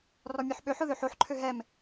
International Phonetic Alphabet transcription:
r ɔ mʲ ɔ ħ ɓ ø ħ ʊ ð ø ħ o ħ ǃʰ ø ɦ ɛ m

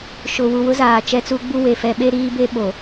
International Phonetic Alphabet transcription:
ʃ ʊ˨ w u˨ w ʊ˦ z aː˨ t͡ʃ ɛ˦ t͡s u˦ ɡ͡b u˦ w e˨ f ɛ˦ ɓ e˦ ɾ iː˦ b e˦ ɓ o˨

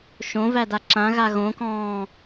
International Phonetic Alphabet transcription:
ʃ õ v æ d a ǁ ã ɣ a ɣ õ k ɔ̃ː

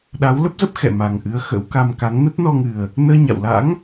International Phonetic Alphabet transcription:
ɗ a˨˦ w l ə˦˥ p̚ z ə˦˥ p̚ x ɛ̰˧˨ m a˨˩ ŋ ʔ ɨ˨˦ ə̯ x ə̰˧˥ w k a˧ m k a˨˦ ŋ n ə˦˥ t̚ n ɔ˧ ŋ ɨ˨˩ ə̯ | n əː˧ ɲ a̰˧˨ w l a̰˧˥ ŋ

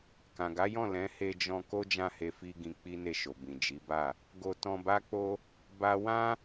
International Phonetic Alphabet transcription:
k ã˨ ɡ a˨˦ j ɔ̃˦˨ l ɛ̃˨˦ h e˧ d͡ʒ ɔ̃˧ k o˦ d͡ʒ ã˦˨ h e˧ f i˦ ɡ ĩ˧ k͡p i˦ n e˦˨ ʃ o˨ b ĩ˨ d͡ʒ i˨˦ b a˦˨ | ɡ o˧ t ɔ̃˧ b a˦ k͡p o˦ | b a˦ w ã˦

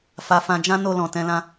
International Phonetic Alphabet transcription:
f a˧ f ã˧ d͡ʒ ã˦ n o˧ l ɔ̃˨ t ɛ̃˧ l ã˧

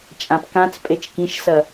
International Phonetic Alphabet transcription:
t͡ʃʼ ã p k ã t͡s pʼ e t͡ʃ k ĩ ʃ s ɐ

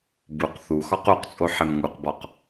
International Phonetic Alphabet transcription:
b u q θ u x ɒ q u q t͡sʼ o ħ e m ŋ u q b ɒ q

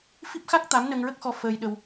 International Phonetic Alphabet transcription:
f i˦˥ p̚ x a˦˥ k̚ t̪ a˧˥ m n ə˧ ŋ ɹ ə˦˥ k̚ x ɔ˧ f əː˧ j ɗ ə˧ w

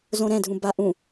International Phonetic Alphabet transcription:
z õ ɾ ɛ̃ dʱ ũ b a ʔ ũ

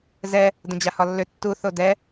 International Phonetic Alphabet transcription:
z ɛ | d ə̃ d͡ʑ a h ɒ lː ʏ tː u θ o d ɛ

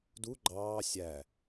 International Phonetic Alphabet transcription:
d u ɡ͡ǃ ɑː sʲ æ

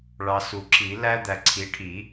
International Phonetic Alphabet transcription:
ɭ ɑ˨ s u˨˩˦ ǁ i˨˩˦ l æ˦ d̪ æ˨ ǀʰ i˩˥ ʈʰ i˨˩˦

